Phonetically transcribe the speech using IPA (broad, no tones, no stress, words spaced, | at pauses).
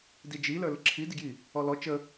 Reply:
did͡ʒi lə˞ləǁʰi diɡji | ɔlɔ t͡ʃə